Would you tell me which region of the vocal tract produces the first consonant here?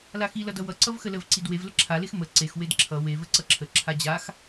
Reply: tongue tip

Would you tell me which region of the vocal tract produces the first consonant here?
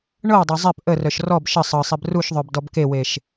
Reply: retroflex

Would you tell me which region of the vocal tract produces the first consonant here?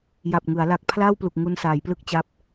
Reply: palate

